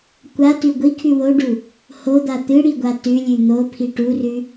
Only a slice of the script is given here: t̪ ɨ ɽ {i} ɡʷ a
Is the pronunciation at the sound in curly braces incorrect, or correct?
correct